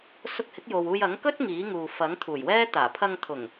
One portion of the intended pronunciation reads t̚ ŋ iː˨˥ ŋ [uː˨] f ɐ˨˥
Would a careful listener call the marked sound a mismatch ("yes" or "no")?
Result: no